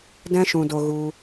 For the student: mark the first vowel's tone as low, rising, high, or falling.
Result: high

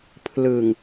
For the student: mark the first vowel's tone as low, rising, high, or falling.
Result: low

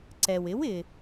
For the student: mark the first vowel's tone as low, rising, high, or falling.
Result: low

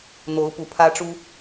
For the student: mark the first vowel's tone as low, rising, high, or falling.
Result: rising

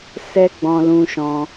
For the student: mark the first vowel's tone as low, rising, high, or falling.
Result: high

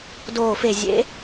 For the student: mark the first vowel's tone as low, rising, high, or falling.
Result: low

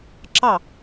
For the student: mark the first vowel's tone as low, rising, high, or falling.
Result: falling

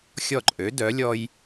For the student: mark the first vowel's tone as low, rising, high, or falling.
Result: falling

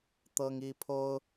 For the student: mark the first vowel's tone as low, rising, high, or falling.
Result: high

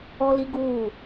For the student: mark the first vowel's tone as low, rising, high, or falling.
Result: high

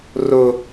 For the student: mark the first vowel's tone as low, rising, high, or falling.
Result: high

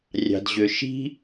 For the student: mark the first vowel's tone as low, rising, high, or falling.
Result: low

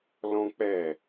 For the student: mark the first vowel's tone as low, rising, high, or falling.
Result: high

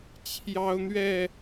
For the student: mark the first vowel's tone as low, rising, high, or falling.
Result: high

